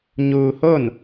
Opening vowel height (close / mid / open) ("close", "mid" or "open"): close